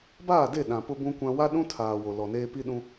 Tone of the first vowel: falling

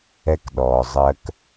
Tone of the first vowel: high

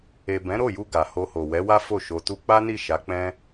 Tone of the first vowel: low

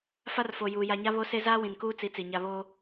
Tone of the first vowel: high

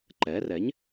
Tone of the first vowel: rising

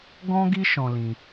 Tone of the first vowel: high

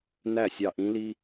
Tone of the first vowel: falling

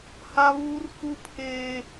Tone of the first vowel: high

